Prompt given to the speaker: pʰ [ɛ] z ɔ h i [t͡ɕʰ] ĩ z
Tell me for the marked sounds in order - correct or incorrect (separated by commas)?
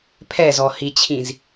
correct, correct